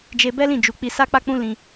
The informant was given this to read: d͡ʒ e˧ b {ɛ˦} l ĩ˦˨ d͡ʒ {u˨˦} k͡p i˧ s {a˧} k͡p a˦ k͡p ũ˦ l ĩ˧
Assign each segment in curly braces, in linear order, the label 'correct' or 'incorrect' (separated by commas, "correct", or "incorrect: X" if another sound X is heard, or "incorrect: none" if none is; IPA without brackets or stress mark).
correct, correct, incorrect: a˦